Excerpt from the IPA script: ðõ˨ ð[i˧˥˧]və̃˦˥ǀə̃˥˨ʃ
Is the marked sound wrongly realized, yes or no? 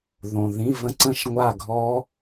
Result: yes